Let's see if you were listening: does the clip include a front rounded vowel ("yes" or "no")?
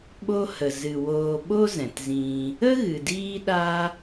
no